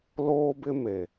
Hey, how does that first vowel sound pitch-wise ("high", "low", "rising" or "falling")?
high